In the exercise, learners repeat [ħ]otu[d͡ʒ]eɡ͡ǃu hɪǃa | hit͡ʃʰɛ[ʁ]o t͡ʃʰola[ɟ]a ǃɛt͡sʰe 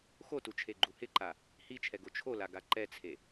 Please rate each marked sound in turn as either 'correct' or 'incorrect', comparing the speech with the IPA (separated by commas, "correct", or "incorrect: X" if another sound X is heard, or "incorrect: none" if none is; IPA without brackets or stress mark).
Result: incorrect: x, incorrect: t͡ʃʰ, incorrect: ɡ, incorrect: ɡ